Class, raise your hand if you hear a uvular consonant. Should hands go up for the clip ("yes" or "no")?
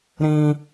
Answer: no